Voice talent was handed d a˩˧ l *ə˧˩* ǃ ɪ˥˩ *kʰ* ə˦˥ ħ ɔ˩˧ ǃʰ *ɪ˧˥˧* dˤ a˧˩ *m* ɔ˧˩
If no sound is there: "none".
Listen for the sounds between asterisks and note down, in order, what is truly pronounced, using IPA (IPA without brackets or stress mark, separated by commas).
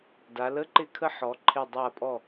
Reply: ə˧˥˧, kʰ, ɪ˧˩, pʼ